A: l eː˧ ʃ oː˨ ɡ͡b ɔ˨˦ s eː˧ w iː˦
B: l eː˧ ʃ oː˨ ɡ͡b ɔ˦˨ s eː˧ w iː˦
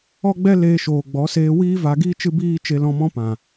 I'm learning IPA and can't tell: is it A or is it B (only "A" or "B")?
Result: A